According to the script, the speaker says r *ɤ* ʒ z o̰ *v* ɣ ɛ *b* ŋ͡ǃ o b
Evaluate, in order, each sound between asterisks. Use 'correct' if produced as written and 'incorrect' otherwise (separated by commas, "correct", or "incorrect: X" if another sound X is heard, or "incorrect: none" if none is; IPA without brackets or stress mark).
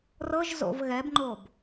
correct, correct, correct